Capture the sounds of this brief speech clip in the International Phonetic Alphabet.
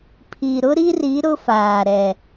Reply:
pʰ i˨ ɾ ʊ˦ ɾ i˦ r i˨˦ ɾ ʊ˦ f aː˨ ɾ ɛ˨

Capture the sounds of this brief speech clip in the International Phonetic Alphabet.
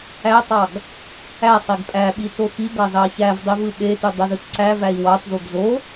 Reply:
æ tˤ ɑ ɡ | æ sˤ e ɡ pʼ æ ɓ i t o x i ɡ ɑ z ɑ ç æ v dˤ i v ɯ ɓ e t y dˤ ɯ z ɯ t ǀ æ v æ i̯ w ɑ t z o ɡ z o

